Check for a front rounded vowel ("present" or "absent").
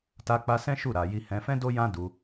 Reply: absent